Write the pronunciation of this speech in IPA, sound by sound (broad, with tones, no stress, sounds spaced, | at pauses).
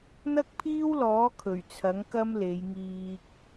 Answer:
n̪ ɐ˥ k̚ pʰ iː˥ w l ɔː˨˥ kʰ ɵ˨˩ ɥ t͡sʰ ɐ˨˥ ŋ k ɐ˥ m l e˨˧ j ŋ iː˧ k̚